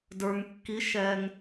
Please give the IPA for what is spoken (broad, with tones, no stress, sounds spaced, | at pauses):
d ə˞˩ ŋ kː i˩˧ ʃ ɛː˩ ŋ